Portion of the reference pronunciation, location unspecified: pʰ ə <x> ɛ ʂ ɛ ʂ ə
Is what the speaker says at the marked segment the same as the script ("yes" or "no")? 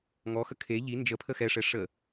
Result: yes